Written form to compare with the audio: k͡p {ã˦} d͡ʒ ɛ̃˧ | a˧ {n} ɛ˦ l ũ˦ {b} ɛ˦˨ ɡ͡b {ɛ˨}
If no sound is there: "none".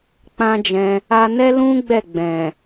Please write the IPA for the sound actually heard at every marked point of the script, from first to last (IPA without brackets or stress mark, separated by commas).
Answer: ã˦, n, ɡ͡b, ɛ̃˨